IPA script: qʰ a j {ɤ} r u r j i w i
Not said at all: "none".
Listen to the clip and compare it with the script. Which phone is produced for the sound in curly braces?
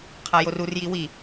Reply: o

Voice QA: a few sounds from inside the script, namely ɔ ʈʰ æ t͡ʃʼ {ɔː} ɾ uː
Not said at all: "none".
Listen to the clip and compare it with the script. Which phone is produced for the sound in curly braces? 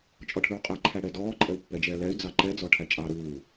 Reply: ɑː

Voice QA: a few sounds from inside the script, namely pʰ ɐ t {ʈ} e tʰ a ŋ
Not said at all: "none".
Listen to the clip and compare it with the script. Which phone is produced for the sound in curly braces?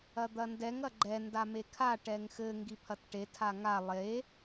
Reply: ʈ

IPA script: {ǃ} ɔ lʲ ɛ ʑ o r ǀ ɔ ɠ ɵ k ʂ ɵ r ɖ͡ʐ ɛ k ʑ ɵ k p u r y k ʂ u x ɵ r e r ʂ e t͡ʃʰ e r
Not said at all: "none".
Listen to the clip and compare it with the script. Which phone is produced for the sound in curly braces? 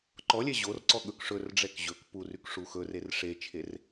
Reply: ǃ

